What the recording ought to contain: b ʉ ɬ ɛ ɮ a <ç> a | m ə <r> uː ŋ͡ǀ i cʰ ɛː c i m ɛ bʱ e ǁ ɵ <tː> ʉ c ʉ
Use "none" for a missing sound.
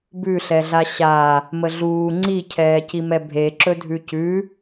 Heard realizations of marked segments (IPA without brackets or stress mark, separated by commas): ɕ, ɮ, dʱ